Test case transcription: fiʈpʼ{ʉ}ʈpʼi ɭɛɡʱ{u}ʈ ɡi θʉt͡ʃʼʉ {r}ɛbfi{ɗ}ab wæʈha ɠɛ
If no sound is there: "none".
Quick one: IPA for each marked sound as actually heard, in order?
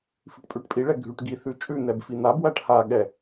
ʉ, ʉ, n̪, n̪

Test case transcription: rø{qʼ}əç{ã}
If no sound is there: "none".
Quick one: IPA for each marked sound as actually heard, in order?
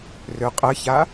qʼ, a

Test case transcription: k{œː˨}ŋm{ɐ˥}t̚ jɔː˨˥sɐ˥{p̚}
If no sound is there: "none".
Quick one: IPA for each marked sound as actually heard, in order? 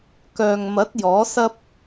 œː˨, ɐ˨˥, p̚

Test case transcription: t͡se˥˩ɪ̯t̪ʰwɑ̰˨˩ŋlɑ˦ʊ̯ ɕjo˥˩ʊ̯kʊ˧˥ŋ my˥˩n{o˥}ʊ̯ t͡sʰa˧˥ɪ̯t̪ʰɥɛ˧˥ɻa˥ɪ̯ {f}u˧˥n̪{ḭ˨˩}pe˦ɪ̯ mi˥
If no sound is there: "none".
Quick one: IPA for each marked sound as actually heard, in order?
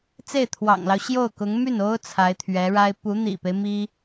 o˥, p, ḭ˨˩

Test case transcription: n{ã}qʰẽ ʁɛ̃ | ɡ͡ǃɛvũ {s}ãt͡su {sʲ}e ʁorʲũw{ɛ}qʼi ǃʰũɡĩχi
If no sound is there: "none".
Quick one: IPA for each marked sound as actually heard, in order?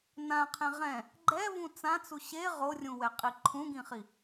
ã, t͡s, ɕ, ɛ

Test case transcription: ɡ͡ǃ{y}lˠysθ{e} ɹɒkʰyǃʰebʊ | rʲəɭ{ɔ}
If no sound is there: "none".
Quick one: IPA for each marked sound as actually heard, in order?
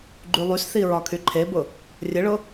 y, i, ʊ

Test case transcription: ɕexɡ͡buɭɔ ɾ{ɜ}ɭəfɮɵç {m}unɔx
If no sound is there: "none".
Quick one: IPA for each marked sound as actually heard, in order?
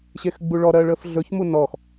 ɜ, m

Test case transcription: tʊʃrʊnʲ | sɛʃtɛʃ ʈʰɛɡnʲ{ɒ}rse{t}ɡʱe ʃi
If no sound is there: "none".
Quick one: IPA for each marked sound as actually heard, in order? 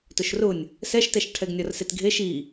ɒ, t

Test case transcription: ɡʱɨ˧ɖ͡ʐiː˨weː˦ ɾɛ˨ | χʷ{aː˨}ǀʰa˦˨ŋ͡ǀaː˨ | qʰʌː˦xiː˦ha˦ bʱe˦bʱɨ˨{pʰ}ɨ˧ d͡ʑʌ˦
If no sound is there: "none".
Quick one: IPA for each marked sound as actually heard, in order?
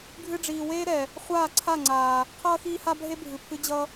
aː˦˨, pʰ

